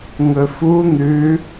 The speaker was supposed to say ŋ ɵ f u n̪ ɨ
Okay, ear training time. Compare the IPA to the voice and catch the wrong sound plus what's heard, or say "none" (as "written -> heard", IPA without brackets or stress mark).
ɨ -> ʉ